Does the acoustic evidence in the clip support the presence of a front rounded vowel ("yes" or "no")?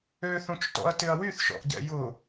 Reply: yes